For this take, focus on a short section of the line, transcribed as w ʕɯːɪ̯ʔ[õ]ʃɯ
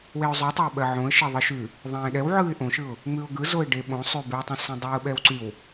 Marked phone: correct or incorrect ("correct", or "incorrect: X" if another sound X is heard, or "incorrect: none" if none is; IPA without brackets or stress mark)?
correct